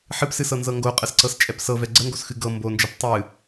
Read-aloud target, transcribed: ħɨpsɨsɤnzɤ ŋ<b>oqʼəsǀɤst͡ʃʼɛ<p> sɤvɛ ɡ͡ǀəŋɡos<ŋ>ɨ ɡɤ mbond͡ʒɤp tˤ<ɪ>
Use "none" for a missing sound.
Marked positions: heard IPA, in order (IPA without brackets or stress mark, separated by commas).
ɡ, p, x, ɨ